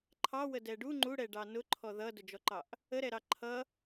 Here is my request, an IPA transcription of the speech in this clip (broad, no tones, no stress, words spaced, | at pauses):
ǃʰɑwədɛ ɖu ŋ͡ǃuɽɛɖɑ nʊǃʰɔ ðʌdʊd͡ʒɔǃɑʔ | əɾɛɾɑ ǃʰʌ